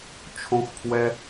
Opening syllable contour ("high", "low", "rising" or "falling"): high